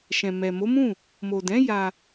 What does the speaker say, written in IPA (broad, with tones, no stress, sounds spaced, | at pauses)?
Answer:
ʃ ɛ̃˨ m ɛ˨ m o˨˦ m ũ˦˨ | m o˨ d ɛ̃˨˦ j a˧